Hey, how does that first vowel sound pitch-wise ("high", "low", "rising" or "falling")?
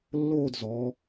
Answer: falling